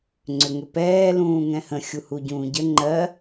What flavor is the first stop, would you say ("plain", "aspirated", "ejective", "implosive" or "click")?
click